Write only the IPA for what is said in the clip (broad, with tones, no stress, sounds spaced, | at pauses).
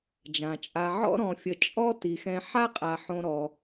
d͡ʒ ã˩ t͡ʃʼ a˨ ʕ ɔ̰˦ ɾ ɔ̃˨ fʲ ə˨ t͡ʃʼ ɔ˦ t i˩ x ɛ̃˨ ħ a˦ qʼ a˩ ħ õ˨ ɾ ɔ˩